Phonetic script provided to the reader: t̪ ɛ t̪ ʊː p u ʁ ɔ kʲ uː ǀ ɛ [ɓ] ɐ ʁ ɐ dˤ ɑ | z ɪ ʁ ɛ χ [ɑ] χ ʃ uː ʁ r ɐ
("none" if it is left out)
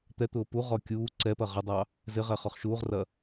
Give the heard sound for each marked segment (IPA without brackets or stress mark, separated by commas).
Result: p, ɔ